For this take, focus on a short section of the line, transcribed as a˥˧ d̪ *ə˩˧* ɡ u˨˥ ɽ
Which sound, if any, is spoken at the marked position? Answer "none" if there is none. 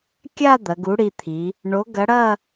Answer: ɐ˩˧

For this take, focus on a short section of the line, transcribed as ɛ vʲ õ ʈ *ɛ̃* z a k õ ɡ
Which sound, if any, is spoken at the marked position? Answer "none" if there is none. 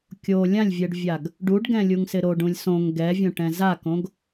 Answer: ɛ̃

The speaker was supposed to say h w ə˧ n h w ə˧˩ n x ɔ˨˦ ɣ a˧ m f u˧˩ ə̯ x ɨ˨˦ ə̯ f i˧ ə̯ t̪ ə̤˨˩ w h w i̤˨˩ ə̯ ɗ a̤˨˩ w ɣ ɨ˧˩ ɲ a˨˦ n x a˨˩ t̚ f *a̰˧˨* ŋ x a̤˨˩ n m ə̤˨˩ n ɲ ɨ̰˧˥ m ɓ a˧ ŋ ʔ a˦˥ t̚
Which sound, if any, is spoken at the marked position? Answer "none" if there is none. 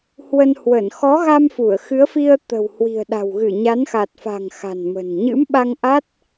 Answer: a̤˨˩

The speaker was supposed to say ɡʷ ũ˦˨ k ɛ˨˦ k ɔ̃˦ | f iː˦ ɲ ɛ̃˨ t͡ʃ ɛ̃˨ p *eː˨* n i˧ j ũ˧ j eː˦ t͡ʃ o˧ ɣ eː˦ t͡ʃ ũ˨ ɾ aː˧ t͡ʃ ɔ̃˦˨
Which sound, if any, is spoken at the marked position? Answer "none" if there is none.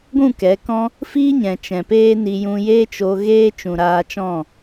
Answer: eː˦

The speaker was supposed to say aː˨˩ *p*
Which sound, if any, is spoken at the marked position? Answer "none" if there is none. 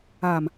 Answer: m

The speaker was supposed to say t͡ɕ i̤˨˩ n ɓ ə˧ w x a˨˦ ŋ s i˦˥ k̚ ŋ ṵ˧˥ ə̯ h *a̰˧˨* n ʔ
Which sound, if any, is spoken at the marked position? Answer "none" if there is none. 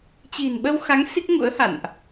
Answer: a̰˧˨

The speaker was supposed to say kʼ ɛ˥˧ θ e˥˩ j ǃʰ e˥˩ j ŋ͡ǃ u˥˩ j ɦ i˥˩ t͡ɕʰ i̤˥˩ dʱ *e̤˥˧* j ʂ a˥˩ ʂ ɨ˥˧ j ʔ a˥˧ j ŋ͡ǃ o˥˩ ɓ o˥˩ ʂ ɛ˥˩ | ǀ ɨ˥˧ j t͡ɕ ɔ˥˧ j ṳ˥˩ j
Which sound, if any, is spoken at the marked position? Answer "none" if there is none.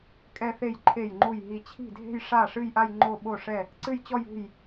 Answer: e̤˥˧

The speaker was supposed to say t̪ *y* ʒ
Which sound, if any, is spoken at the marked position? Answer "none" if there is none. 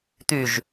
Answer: y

